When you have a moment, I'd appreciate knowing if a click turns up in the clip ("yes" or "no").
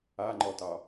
yes